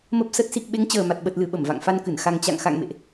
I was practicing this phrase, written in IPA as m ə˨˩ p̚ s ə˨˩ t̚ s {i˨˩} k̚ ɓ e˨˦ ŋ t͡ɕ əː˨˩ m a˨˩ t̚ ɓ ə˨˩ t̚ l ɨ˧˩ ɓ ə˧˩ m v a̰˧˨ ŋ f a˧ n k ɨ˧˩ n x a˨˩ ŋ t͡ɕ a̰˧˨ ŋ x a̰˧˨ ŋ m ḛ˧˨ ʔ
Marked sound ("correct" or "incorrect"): correct